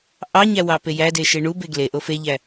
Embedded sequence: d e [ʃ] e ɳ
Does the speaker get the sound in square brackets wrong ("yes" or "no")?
no